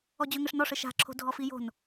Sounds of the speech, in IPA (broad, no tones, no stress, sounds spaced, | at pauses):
ɔ d͡ʑ ø ŋ ɘ ʂ n ɔ ʂ ɘ ʃ a̤ ǁʰ o̤ dʱ ɔ f i j o̤ n